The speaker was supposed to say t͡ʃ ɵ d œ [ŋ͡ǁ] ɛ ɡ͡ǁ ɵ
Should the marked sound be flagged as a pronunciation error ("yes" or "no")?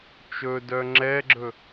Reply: no